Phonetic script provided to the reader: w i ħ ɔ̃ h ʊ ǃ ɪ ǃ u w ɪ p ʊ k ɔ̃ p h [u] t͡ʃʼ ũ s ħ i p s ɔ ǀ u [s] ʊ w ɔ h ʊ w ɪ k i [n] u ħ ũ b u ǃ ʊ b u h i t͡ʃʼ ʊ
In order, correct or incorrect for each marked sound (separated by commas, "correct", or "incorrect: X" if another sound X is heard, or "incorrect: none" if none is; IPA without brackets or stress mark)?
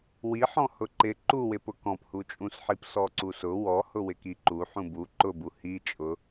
correct, correct, incorrect: ǃ